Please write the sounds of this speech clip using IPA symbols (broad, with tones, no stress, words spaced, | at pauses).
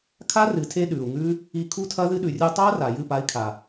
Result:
kʰa˦rɨ˨tʰe˧ ɗʉ˨u̯ŋʉ˦ | i˧ kʰu˦tʰɐ˦ðɨ˦ ɗʉ˨rʲu˧tˤa˦ ra˨jɨ˦˨pa˧i̯kʰa˨